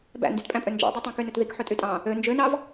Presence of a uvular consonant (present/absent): absent